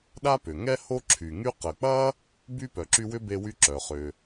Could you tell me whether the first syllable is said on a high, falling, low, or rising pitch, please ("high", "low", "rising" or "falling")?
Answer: high